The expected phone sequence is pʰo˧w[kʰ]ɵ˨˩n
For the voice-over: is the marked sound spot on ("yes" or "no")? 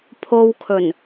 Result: yes